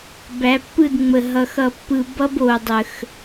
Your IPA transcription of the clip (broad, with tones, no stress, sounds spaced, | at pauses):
b æ˨˦ pː ɯ˦˨ d ŋ͡m ə˨ ɦ ʌ˨ x ʌ˨ pː ɯ˨ b ʌ˦ b o˨ dˤ ə˨ x